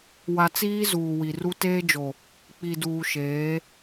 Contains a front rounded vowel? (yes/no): no